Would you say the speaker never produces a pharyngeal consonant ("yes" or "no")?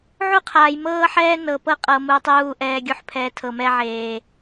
no